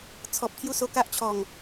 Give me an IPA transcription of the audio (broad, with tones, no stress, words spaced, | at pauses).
t͡sʰɔ˨p̚ t̪ʰju˥˧so˧ka˦ʔt͡ɕʰɔ˨˩ŋ